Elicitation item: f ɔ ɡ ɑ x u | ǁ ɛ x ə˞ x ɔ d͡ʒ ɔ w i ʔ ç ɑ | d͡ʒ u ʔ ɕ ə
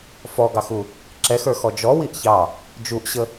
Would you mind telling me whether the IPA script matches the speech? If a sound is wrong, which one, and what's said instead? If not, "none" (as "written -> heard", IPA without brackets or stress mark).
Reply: none